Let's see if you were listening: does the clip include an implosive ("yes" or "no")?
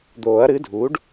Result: no